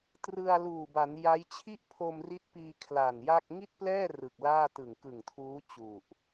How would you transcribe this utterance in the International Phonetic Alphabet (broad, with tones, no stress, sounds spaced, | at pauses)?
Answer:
t r ɯ˧ a̯ l uː˨˩ b a˩˦ n j a˦˥ j t͡ɕʰ i˥˩ ʔ pʰ o˧ m r i˦˥ t̚ p iː˧ kʰ l a˨˩ n j a˥˩ k̚ ŋ i˥˩ t̚ p l ɛː˥˩ r ɯ˨˩ k̚ l aː˥˩ t ɯ˨˩ ŋ k ɯ˨˩ ŋ tʰ uː˦˥ t͡ɕ u˨˩ ʔ